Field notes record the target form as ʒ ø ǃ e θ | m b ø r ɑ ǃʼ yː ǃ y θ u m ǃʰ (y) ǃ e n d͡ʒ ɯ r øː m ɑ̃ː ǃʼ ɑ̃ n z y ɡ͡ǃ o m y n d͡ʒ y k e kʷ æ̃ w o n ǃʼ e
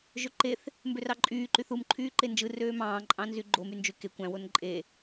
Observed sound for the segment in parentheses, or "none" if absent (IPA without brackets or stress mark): yː